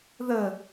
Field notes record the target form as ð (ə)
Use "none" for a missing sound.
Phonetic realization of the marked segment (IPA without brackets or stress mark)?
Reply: ə